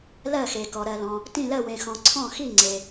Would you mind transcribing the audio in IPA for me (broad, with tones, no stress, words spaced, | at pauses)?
lɜ˧˩xe˩ kɔ˩ɾɜ˩lɔ̃˩ | tĩ˧˩ lɜ˧˩wẽ˩xɔ̃˩ ǀʰɔ̃˧˩xi˧˩ŋ͡ǀe˩